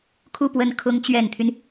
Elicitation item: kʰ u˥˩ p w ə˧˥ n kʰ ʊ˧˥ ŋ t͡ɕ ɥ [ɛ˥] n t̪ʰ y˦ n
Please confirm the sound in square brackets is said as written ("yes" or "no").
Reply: no